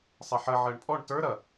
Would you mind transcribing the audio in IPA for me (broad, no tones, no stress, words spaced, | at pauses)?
sˤɛħɐ ʕɜɳpʼɔɳ tə˞ ɾɐ